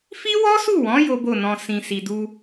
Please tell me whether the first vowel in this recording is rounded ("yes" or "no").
no